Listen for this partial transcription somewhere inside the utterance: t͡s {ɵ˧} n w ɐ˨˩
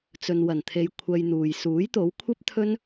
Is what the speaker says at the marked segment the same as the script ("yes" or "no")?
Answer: no